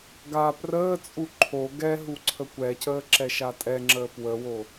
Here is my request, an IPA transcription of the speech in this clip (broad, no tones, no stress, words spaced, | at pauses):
ɡa prəːt͡sʼu ǃʰo ɡɛɦu ǀʰəkʷɛcəː ǁɛʃatʼɛŋ͡ǁəː pwəwo